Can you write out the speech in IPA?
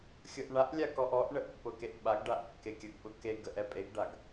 xʲ ʊ ʔ ɳ a ʔ lʲ a k ɔ ʔ ɔ ʔ ɳ ə ʔ pː ʊ k e ʔ ɓ a ɡ ɖ a ʔ kː e kʲ ə ɡ ɓ ʊ k e ɡ ə ʔ ɛ pʼ e ɡ ɖ a ɡ

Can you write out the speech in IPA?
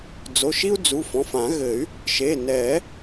d͡z o˩˧˩ ʃ i˦ u̯ d͡z u˩˧˩ f ɔ̃˩˧˩ f ã˨˩˦ ɣ ɘ˨˩˦ y̯ | ʃ e˩˧˩ n ɛ˨˩˦

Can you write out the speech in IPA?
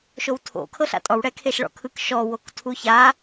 ʃ o w tʰ o̰ kʰ ɤ ɬ a̰ tʼ ɔ w ɽ ɛ kʰ e ʃ ɭ ɔ̰ kʰ ɯ k ʃ ɔ w o k tʰ u ç a

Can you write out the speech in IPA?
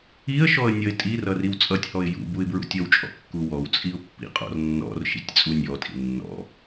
i ə̯ ʃ ɔ ə̯ nʲ ʌ ɪ̯ tʼ i r ʌ r i w t͡sʼ ʌ tʲ h ɔ ɪ̯ j ṵ b u ɪ̯ b ɹ ṵ tʲ ʌ w t͡ʃʼ ɔ̰ kː u w ɔ w t͡sʼ i ʊ̯ pː ḭ qʼ ɔ̰ r nː ɔ̰ r ʃ ḭ tʲ t͡sʼ u nʲ ɔ tʼ ḭ nː ɔ̰

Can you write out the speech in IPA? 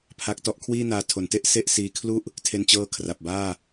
pʰ a˦˥ k̚ t ɔ˦˥ ʔ kʰ w iː˥˩ n aː˧ tʰ o˩˦ n t e˥˩ ʔ s e˥˩ ʔ s iː˧ kʰ l u˥˩ ʔ | tʰ e˧ n t͡ɕ ɤː˦˥ kʰ r a˨˩ p̚ b aː˥˩

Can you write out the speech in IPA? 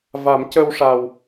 v a˨˩˦ m c ə˧ w ʂ a˨˩ w

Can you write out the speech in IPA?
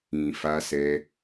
ĩ˨ f a˧ s ɛ˧

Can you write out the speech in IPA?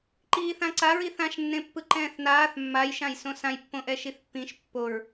ǃ iː θ ã ǀ a ɹ i θ ã ʃ nː ẽ pː ɯ ǃ ɛ̃ː θ n aː θ mː a j ʃ ã j s õ s ã j pː õ ʔ ɛ ʃ i θ pː ĩ ʃ pː o ɹ

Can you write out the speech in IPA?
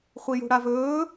χʷ i j ṳ ɽ a v ɵː

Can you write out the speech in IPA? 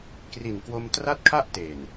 k r i˨˩ n k w o˧ m t r a˥˩ t̚ kʰ a˥˩ ʔ t e˨˩ n

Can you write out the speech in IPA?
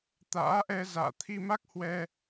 t̪ a̰ː˧˥ ʔ ɛ˧ z a̰ː˧˨ t̪ʰ i˧ m a˦˥ k̚ h w ɛ˧

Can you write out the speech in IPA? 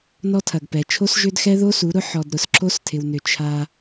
n ɔ˦ tʰ ɐ˨ ɡ p ɛ˨ t͡ʃʰ o˦ s ʒ ʏ˦ d x ɛ˦ ð o˦ s u˨˦ ɾ ʊ˦ ħ ɔ˨ d ɾ ʊ˨ s ǁ o˦ s tʰ ɪ˨ w n ʏ˨ t͡ʃʰ a˦

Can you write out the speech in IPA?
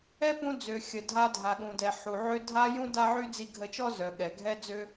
ɛ˦ p ũ˧ d͡z ø˨ xʲ ə˨ dʱ a˧ dʱ a˨ ɠ ũ˨ d ɛ˨ ħ u˨ ʕ ø˦ dʱ a˦ j ũ˦ d a˦ ʕ y˦ d͡z i˧ ɡʱ ə˧ t͡ʃ ɔ˦ z œ˨ ɠ ɛ˨ ɡʱ ɛ˦ d͡z ø˦

